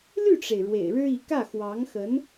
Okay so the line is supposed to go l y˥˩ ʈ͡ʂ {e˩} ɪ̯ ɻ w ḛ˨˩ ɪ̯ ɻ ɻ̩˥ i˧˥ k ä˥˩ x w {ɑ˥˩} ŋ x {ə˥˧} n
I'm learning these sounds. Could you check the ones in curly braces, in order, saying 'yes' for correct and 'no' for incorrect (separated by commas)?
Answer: yes, no, no